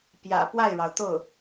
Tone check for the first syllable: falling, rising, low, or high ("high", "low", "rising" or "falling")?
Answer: low